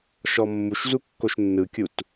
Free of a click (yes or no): yes